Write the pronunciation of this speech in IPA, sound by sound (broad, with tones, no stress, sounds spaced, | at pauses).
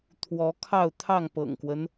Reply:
t̪ʰ w ɔ˨˦ kʰ ɑ˥˨ ʊ̯ t̪ʰ ɑ˥˨ ŋ p ɤ̰˨˩ ŋ k w ə˦ n